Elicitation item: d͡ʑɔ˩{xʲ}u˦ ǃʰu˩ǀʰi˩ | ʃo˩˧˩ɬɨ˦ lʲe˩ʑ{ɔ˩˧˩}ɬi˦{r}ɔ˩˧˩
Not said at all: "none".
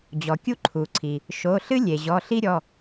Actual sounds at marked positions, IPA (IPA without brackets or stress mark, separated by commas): kʲ, ɔ˩˧˩, ɾʲ